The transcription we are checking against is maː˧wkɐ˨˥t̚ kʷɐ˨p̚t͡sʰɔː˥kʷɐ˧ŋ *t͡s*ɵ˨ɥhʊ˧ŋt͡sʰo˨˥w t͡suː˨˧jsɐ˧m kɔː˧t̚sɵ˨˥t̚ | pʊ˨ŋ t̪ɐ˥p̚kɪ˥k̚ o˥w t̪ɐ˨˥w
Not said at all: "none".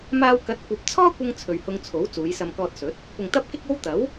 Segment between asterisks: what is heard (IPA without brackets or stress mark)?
t͡sʰ